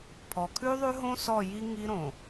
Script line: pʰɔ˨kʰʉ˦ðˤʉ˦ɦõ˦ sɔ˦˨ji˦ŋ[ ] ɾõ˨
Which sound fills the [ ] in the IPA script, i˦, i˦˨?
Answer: i˦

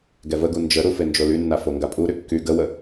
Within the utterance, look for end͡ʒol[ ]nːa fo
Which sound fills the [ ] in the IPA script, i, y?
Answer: y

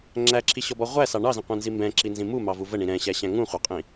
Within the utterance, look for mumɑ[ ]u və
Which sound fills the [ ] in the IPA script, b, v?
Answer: v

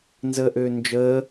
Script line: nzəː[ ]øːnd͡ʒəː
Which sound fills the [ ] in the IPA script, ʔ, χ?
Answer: ʔ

